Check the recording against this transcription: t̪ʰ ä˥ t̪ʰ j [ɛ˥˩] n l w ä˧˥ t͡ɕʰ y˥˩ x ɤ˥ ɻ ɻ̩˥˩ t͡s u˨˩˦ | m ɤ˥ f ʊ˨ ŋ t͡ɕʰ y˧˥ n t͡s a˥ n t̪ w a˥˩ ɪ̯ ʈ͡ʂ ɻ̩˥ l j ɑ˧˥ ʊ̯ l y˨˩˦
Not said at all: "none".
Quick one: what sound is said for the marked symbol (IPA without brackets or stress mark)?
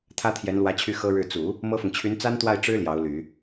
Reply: ɛ˧˥